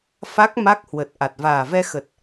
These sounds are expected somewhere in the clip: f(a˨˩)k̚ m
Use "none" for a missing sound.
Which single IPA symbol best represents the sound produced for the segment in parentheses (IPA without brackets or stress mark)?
a˦˥